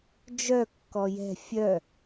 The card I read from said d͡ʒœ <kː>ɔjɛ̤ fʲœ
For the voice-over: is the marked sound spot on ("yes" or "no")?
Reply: yes